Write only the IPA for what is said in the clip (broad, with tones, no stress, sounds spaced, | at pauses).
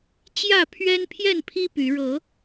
t͡ɕ j ä˥˨ pʰ ɥ ɛ˦ n pʰ j ɛ˥˨ n pʰ i˦ p y˨˦ ɻ ɤ˨˦